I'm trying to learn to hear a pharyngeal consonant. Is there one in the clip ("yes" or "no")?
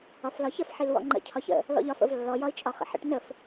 yes